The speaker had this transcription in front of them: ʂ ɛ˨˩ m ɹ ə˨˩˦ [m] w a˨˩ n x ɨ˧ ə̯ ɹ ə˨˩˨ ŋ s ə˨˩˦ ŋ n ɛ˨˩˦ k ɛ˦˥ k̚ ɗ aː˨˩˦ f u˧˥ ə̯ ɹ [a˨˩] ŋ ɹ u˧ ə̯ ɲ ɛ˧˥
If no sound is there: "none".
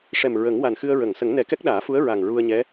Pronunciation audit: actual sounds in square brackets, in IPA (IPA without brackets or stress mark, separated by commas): ŋ, a˨˩